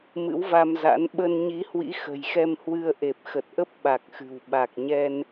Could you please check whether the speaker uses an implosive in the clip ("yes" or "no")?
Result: yes